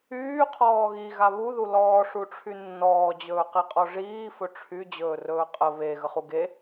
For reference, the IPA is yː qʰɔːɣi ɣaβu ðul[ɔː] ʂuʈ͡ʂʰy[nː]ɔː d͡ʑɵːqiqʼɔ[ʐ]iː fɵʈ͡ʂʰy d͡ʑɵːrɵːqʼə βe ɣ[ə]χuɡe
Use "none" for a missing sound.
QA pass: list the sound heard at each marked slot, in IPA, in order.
ɔː, nː, ʐ, ə

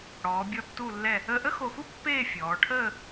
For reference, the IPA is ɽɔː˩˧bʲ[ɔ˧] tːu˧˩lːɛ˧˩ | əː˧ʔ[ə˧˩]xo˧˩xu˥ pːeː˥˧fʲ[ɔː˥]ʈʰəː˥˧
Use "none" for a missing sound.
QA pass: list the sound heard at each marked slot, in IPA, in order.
ɔ˧, ə˥, ɔː˩˧

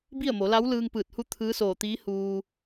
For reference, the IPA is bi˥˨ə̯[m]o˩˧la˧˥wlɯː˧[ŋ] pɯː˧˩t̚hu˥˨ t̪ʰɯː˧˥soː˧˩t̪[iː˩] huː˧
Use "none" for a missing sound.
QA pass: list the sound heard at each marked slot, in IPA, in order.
m, ŋ, iː˧˥

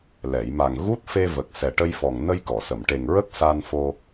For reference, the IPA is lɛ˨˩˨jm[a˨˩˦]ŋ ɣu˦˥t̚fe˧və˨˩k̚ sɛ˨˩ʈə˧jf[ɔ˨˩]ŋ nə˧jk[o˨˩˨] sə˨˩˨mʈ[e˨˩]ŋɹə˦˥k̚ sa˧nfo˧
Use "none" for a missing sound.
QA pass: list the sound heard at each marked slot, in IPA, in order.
a˨˩, ɔ˨˩, ɔ˨˩˨, e˨˩

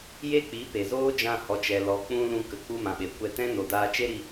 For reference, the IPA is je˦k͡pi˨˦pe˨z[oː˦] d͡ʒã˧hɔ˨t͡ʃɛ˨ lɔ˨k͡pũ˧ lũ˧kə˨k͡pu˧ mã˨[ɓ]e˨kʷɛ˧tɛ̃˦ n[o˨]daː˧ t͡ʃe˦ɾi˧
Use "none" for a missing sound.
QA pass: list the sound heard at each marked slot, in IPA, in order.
oː˦, ɓ, o˨

